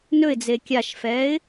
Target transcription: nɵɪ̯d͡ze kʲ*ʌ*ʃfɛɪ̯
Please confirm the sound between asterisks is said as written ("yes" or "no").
no